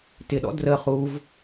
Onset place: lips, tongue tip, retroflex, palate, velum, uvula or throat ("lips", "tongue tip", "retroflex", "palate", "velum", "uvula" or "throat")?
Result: tongue tip